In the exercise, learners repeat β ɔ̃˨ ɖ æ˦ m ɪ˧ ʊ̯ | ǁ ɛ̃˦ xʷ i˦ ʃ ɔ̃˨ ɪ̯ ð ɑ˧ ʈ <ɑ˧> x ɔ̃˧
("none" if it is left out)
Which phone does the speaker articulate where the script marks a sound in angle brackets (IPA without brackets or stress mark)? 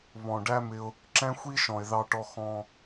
ɔ˧